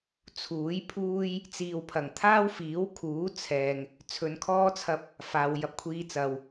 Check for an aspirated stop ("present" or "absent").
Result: present